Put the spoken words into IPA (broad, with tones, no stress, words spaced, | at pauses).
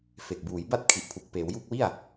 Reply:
fe˨˩k̚buː˩˦jba˦˥t̚ kʰi˨˩ʔpʰu˨˩k̚peː˩˦wju˥˩k̚ wi˥˩a̯